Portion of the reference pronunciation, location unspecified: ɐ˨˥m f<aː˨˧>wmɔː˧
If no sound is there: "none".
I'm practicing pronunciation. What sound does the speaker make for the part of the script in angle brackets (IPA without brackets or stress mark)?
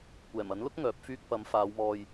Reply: aː˨˧